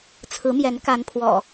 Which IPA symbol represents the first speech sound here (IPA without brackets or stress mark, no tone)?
t͡sʰ